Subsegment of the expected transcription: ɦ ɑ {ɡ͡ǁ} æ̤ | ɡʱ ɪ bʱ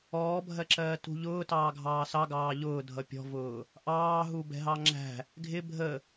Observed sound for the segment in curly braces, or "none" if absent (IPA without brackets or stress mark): ŋ͡ǁ